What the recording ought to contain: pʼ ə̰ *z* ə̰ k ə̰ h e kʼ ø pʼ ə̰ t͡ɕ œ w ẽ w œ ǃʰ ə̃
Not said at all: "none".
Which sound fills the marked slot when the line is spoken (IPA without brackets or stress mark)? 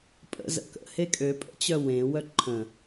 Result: z